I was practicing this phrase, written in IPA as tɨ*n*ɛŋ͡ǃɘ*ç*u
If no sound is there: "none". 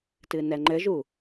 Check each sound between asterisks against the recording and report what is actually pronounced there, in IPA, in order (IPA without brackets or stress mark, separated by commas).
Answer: n, ʒ